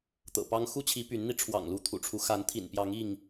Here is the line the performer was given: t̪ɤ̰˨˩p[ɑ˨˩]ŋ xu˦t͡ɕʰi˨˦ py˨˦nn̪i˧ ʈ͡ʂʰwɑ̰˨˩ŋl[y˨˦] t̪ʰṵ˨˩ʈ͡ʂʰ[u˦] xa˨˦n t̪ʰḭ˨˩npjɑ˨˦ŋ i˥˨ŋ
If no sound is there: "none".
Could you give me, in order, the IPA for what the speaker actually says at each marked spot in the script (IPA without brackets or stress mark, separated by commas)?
ɑ˦, u˨˦, u˦